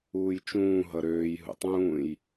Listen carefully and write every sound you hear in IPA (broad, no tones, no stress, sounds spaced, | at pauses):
uː j t͡ʃ ũː ɦ ʌ ɾ øː j ɦ ṵ tˤ ũː j